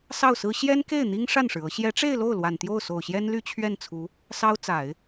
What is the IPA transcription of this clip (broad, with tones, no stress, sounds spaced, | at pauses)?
s ɑ˥˩ ʊ̯ s ɹ̩˥ ɕ j ɛ˥ n k e˥˩ ɪ̯ n̪ i˥ ŋ ʂ a˥˩ n ʂ ɻ̩˩ ɤ˧˥ ɕ j ɛ˧˥ ʈ͡ʂ e˥˧ ɪ̯ l o˥˩ ʊ̯ l w a˨˩ n t̪ j o˥˩ ʊ̯ s o˨˩ ʊ̯ ɕ j ɛ˥ n l y˥˧ t͡ɕʰ ɥ ɛ˥˩ n t͡sʰ u˧˥ | s ɑ˥ ʊ̯ t͡s a˨˩˦ ɪ̯